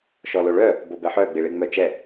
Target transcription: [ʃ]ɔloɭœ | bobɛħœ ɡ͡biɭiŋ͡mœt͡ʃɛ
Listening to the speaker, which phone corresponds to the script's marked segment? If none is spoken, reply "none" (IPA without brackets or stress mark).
ʃ